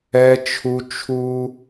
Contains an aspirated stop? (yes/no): yes